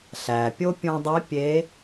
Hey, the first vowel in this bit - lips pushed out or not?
no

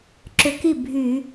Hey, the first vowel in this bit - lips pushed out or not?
yes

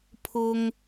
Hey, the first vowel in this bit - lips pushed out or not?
yes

